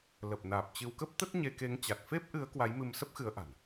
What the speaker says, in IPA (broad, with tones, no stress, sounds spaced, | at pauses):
l ə˨˩ p̚ n aː˨˩ p̚ t͡ɕ ɨ˧ w k ə˦˥ p̚ t̪ ə˦˥ t̚ ɲ e˧ k e˨˦ ŋ t͡ɕ a˨˩ t̚ f e˦˥ p̚ ʔ ɨ˨˦ ə̯ k w a˨˦ j m ɨ˧ m s ə˦˥ p̚ x ɨ˨˦ ə̯ ʔ a̤˨˩ n